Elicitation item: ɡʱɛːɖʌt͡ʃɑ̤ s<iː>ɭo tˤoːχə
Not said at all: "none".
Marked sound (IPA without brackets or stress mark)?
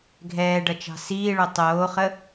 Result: iː